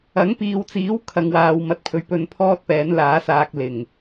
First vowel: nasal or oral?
oral